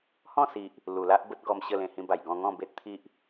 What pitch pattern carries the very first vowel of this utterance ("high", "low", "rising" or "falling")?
falling